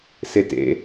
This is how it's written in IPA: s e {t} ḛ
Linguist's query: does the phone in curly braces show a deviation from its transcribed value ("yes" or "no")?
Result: no